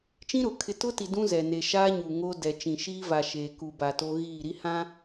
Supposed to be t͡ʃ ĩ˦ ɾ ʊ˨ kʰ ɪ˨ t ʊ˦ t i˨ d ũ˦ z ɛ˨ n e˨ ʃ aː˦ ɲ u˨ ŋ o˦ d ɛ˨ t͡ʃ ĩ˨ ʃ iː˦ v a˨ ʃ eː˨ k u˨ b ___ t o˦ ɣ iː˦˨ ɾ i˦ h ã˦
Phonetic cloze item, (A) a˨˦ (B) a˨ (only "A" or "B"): B